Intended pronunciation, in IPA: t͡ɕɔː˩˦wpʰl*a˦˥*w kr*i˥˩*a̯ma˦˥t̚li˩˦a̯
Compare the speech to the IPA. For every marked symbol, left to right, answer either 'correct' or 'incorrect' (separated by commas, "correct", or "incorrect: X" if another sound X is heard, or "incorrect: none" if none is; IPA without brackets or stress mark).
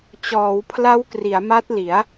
correct, incorrect: i˩˦